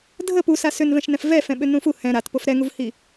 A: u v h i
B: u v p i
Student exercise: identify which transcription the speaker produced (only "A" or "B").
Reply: A